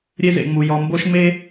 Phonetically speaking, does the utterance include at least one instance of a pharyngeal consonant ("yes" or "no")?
no